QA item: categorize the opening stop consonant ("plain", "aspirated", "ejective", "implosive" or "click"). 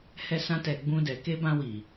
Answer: plain